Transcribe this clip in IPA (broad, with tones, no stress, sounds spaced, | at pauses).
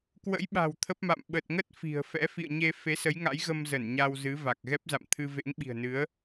k w ə̰˧˥ j ɓ a̤˨˩ w t̪ʰ ə˦˥ p̚ m a̰˧˨ m ɓ ə˨˩ t̚ ŋ ə˦˥ t̚ f i̤˨˩ ə̯ f ɛ̰˧˥ f ḭ˧˨ ə̯ ɲ e˧ f e˨˦ s ə˨˦ j ŋ a̰˧˥ j ɣ ə˧ m z ə˧˩ n ɲ a˧ w z ɨ˨˦ v a˨˩ k̚ ɣ ɛ˦˥ p̚ z a̰˧˨ m t̪ʰ ɨ˧ v ḛ˧˥ ŋ ɓ i̤˨˩ ə̯ n ɨ˨˦ ə̯